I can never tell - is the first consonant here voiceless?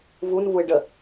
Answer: no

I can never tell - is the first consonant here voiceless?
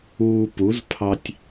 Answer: yes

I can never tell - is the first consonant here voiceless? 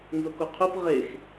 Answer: no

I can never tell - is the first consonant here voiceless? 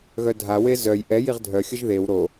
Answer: no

